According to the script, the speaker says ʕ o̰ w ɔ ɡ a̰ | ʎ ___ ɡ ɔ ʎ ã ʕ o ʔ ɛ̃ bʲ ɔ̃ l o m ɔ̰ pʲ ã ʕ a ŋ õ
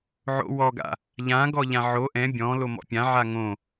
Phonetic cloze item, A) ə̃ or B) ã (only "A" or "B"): B